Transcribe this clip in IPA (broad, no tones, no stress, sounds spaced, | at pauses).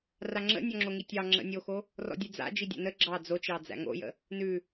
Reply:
r a ŋ͡ǁ ə̰ nʲ ɔ ŋ͡ǁ o ŋ i tʲ ɑ ŋ͡ǁ ə̰ nʲ o x o | r ɔ̰ dʲ ʉ d͡z a̰ d͡ʒ i dʲ a̰ n ə ɡ͡ǁ ɑ d͡z o t͡ʃ ɑ d͡z æ̰ ŋ o̰ j ə̰ | n ʉ